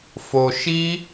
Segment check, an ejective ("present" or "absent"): absent